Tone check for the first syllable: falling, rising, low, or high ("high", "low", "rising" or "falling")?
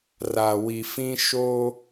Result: low